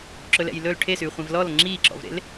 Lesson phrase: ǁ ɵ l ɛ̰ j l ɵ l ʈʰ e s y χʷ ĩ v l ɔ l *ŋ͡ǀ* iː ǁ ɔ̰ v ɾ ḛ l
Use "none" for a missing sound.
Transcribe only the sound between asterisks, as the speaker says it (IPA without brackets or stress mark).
ŋ͡ǁ